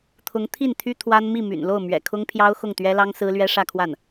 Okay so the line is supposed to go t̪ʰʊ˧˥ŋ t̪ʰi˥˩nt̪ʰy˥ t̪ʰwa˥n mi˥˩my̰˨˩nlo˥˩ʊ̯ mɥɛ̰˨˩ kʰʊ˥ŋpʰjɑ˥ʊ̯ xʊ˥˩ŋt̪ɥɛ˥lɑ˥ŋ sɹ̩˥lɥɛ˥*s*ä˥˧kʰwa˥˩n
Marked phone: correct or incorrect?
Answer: incorrect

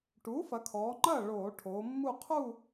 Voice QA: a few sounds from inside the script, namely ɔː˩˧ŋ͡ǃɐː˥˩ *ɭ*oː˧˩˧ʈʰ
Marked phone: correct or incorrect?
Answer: correct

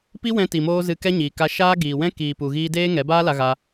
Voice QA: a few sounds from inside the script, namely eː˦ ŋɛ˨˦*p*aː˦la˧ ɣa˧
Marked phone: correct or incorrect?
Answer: incorrect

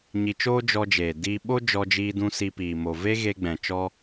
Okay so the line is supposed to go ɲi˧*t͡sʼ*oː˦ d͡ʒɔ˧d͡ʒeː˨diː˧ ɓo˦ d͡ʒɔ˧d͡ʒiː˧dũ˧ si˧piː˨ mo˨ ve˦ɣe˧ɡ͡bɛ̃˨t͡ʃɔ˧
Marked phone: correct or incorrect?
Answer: incorrect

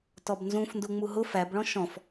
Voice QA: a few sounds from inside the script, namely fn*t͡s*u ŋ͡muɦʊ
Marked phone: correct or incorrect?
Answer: incorrect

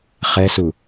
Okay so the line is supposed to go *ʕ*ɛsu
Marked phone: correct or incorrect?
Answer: incorrect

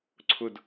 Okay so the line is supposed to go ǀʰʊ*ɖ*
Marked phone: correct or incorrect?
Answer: incorrect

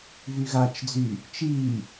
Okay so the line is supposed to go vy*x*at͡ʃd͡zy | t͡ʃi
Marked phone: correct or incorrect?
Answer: incorrect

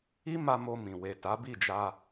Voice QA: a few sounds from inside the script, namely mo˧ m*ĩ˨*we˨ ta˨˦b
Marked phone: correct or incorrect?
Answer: correct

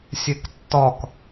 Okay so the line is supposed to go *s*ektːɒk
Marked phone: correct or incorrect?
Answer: incorrect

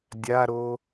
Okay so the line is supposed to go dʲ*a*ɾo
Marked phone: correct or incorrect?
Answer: correct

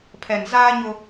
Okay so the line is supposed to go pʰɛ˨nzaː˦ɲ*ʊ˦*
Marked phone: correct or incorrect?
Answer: correct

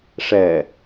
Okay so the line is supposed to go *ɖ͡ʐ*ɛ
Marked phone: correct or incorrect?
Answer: incorrect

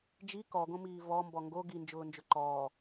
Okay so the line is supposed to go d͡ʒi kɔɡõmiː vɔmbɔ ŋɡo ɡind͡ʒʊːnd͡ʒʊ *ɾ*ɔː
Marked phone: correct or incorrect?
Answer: incorrect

